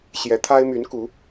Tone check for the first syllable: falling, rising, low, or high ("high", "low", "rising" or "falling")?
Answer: rising